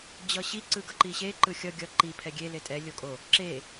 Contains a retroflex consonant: no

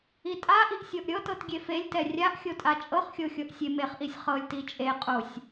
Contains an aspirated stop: no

